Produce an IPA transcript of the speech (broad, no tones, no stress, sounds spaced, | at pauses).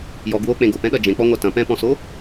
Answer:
j ɔ ɡ w o k͡p ẽ ɡ o p ɛ̃ ɗ ɐ d͡ʒ ẽ k͡p ɔ ŋʷ a t ɐ̃ p ɛ̃ p ɔ̃ s o